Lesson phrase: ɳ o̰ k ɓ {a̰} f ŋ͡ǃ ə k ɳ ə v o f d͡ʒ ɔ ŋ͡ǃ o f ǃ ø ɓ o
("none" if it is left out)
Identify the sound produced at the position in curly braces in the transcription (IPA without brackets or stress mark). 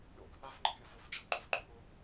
a